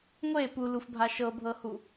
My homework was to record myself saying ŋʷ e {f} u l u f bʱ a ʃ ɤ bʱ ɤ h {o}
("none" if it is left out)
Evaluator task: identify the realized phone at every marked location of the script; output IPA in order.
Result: p, u

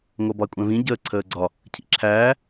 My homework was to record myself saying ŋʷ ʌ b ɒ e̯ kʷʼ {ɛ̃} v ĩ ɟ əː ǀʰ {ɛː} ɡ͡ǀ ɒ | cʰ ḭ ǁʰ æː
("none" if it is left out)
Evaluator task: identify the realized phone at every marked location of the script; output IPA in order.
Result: ɛ̃, əː

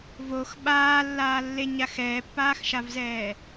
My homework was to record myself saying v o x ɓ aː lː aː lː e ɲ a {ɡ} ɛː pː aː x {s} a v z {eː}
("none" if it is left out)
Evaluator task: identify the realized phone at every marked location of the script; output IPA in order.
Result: x, ʃ, ɛː

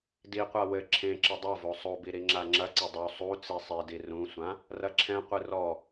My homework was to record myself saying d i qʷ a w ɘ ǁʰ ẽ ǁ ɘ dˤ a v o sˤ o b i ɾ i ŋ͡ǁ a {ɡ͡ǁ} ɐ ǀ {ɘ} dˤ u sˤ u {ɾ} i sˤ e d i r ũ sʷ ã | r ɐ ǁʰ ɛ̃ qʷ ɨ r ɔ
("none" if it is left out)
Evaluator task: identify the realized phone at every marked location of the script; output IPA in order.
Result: ŋ͡ǁ, ɘ, t͡s

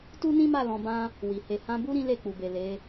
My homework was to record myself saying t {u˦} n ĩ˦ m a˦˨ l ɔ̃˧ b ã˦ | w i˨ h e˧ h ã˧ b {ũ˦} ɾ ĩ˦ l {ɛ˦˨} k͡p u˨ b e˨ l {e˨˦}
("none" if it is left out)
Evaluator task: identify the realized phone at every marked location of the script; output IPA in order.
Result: u˦, u˦, e˦˨, e˨˦

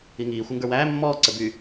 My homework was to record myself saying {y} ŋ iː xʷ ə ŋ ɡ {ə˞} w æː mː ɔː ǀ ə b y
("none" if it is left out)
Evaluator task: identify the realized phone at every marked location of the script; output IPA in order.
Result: i, ə˞

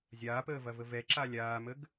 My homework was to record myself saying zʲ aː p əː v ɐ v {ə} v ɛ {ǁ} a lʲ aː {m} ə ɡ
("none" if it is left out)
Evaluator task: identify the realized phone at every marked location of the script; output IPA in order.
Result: ə, ǁ, m

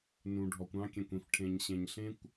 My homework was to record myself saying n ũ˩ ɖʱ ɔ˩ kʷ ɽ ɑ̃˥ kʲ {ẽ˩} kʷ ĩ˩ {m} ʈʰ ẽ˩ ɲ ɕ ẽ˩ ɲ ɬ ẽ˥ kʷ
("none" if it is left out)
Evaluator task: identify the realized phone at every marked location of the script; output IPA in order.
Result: ẽ˩, f

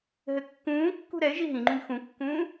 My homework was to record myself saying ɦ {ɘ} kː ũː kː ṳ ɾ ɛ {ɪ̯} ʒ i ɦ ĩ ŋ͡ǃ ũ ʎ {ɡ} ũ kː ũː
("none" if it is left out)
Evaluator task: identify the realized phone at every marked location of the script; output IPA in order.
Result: ɘ, ɪ̯, x

